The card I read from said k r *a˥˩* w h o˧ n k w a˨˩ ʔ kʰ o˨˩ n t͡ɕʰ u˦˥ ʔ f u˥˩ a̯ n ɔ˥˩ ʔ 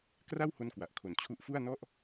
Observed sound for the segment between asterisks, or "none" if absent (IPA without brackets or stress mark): a˥˩